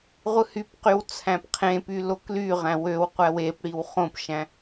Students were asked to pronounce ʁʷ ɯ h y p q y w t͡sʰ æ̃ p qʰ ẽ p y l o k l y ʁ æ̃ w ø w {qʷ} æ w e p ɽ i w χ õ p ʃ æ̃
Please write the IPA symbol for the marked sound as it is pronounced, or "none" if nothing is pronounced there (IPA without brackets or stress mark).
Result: qʷ